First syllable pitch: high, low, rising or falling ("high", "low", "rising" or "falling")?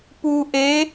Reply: low